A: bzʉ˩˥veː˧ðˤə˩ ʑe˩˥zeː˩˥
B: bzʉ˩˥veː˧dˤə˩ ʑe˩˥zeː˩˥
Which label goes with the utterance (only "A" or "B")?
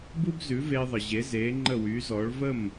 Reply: A